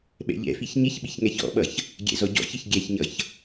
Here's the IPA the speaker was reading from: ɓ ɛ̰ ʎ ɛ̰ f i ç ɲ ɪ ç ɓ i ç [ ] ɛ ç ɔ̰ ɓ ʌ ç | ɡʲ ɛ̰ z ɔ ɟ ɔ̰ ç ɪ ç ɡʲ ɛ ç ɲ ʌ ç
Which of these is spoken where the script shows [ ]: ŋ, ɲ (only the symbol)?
ŋ